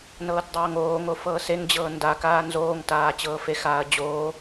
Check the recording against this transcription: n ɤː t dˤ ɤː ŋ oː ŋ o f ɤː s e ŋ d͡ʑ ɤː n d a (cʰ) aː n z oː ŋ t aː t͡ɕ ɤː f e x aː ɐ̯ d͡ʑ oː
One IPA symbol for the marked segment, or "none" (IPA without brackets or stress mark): k